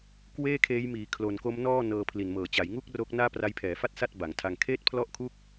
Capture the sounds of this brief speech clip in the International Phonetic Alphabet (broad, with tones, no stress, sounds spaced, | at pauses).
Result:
k w eː˥˩ kʰ eː˦˥ j m iː˩˦ kʰ l o˨˩ n k o˦˥ m n ɔː˥˩ n ɤː˧ pʰ l i˨˩ n m ɤː˩˦ t͡ɕ a˩˦ j ŋ u˥˩ k̚ r o˦˥ k̚ n aː˥˩ p r a˦˥ j pʰ ɛː˩˦ f a˥˩ t̚ s a˥˩ t̚ b a˩˦ ŋ tʰ a˧ ŋ kʰ eː˥˩ t̚ pʰ l ɔ˥˩ ʔ kʰ u˥˩ k̚